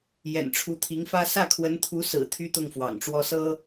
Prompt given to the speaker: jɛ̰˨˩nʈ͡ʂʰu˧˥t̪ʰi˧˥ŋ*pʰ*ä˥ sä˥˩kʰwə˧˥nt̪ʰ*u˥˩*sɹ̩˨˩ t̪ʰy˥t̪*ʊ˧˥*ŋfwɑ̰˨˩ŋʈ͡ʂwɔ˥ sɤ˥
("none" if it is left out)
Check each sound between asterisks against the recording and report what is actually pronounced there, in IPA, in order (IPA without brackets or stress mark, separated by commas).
f, u˧˥, ʊ˥˩